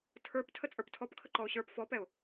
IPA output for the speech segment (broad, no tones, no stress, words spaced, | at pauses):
tʰə˞p tʰət͡sʼə˞ptʰɔpkʰə ǃɔʊ̯ɕə˞p fɔpɛʊ̯